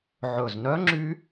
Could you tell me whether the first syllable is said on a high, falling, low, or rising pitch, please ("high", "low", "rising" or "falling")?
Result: low